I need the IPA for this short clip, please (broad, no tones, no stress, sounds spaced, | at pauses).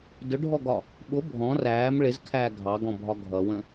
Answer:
d ʊ ɖʱ ɔ ɡ ɒ | ɓ ʊ bʱ ɔ̃ r æː m ɭ ɪ z kʰ æː ɡʱ ɑ ɡ ɔ̃ bʱ ɒ ɡʱ ʌ w ə̃